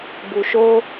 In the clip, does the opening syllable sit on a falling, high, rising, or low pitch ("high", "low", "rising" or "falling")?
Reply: low